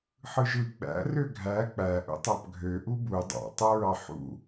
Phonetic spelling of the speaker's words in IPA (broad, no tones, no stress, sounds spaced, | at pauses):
ħ ɯ ʒ ɯ ɡ͡b æ̰ r ø ɡʱ æ k͡p æ ʔ ṵ tˤ ɑ p ɡʱ ø ʔ u b u dˤ ɑ̰ tˤ ɑ ɹ ɑ ħ ṵ